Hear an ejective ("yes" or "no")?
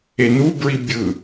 no